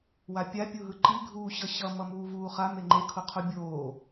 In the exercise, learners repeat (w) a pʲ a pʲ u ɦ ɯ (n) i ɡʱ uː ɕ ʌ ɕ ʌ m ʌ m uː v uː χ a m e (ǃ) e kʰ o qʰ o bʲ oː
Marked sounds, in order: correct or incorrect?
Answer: correct, incorrect: ǃ, incorrect: ŋ͡ǃ

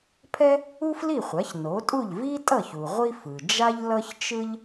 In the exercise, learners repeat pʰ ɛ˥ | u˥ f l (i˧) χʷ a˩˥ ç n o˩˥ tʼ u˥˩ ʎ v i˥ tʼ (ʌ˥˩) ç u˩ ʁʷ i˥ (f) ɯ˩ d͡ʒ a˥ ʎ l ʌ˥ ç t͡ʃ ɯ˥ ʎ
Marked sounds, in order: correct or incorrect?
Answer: incorrect: i˥˩, correct, correct

